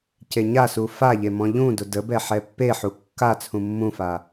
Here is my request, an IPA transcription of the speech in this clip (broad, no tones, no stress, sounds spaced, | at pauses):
c e ɲ a s u f a ʎ e m ɔ̃ ʎ ũ d ʊ d ə b ɛ ħ ɛ pː e ħ u kː a t͡sʰ ũ mː ũ f a